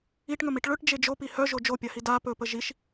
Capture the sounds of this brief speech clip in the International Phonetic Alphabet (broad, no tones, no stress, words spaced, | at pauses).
iʈŋɵmiʈ ɭɵʈd͡ʒe d͡ʒopi hœʒo d͡ʒopʲahi da pɵpə ʒiʃ